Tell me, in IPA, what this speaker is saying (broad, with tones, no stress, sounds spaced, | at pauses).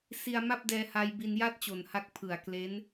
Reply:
s i˧ a̯ m a˥˩ p̚ d ɛː˧ h a˧ j b i˧ n j a˥˩ t̚ t͡ɕ o˨˩ n h a˦˥ k̚ pʰ ɯ˨˩ a̯ k l e˦˥ n